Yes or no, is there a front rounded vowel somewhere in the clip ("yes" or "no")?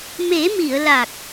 no